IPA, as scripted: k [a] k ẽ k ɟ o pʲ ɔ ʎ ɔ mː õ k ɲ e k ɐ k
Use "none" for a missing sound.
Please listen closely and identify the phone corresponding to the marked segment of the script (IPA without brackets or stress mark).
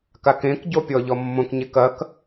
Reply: a